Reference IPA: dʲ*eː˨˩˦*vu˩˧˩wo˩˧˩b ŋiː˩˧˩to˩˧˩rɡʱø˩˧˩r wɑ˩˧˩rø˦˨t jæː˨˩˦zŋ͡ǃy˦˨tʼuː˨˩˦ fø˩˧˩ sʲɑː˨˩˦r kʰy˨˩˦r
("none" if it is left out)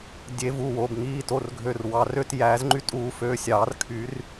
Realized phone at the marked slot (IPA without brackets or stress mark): e˨˩˦